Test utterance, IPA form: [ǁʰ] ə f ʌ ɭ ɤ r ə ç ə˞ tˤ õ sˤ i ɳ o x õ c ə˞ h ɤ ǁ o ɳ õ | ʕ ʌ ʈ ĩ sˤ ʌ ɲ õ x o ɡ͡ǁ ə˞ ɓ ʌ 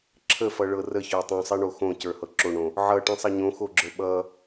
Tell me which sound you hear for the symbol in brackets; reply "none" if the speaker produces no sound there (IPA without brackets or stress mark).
ǁʰ